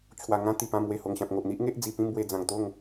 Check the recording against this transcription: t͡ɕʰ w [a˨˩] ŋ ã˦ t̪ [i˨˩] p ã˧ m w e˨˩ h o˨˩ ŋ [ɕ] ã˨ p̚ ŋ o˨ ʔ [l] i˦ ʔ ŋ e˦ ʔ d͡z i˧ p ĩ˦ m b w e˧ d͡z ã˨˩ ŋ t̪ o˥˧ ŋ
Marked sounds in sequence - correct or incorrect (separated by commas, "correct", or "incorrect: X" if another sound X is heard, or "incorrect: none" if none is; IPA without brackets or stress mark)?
correct, correct, correct, incorrect: n̪